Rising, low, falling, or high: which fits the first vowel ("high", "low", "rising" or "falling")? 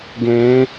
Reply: rising